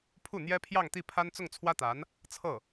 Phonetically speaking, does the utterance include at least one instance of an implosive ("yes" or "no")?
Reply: no